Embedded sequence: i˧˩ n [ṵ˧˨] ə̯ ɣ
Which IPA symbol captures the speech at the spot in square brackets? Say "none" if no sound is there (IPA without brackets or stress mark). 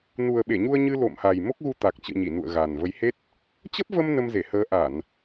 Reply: ṵ˧˨